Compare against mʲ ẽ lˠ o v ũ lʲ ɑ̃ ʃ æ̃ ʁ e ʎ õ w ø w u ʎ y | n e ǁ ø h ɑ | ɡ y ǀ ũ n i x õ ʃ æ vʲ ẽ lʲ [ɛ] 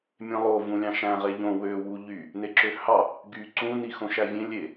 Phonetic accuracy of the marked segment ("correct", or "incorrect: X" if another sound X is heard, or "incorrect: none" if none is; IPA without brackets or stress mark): incorrect: e